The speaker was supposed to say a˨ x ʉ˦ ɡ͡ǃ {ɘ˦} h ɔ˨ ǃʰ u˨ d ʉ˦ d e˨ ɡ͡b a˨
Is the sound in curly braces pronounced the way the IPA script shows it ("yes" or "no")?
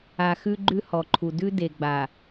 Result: no